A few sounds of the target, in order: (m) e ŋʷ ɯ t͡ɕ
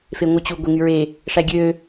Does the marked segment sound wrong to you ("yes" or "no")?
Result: yes